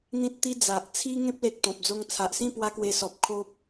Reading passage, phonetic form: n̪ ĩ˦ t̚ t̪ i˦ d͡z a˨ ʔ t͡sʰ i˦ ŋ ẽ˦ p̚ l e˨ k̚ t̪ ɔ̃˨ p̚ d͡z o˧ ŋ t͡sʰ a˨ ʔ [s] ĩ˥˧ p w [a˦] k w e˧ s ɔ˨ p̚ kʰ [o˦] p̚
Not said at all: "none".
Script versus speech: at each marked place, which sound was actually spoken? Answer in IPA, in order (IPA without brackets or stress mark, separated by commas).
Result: s, a˦, o˦